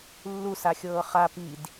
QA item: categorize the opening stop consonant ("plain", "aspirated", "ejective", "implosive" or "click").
plain